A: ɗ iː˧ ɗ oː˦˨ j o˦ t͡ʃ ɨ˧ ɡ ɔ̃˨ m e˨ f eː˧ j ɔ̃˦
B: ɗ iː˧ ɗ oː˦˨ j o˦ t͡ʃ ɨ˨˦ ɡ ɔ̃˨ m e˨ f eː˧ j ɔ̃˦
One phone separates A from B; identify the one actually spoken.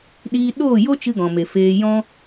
A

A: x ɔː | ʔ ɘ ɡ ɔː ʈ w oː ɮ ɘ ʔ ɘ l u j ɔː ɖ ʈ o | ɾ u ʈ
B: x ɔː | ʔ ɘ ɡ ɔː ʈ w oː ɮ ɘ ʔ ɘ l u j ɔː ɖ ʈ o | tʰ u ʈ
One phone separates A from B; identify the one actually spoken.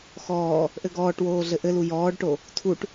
B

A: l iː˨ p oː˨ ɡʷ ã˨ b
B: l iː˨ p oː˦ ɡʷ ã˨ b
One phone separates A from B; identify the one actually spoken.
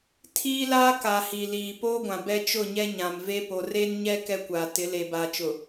B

